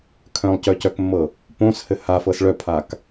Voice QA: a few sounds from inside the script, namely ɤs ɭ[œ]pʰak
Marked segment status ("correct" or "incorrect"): correct